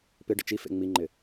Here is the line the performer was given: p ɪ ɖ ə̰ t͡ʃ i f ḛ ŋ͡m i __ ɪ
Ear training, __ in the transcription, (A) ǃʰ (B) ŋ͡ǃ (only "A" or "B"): B